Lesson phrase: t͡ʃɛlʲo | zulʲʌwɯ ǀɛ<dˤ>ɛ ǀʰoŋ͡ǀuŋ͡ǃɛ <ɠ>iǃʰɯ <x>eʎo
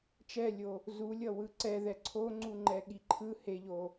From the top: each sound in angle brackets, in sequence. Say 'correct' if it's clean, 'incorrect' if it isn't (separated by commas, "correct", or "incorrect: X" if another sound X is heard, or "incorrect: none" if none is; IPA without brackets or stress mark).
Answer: incorrect: ð, correct, incorrect: h